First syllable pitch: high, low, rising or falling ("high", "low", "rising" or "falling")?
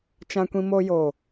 high